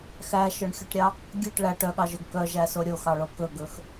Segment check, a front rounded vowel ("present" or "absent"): present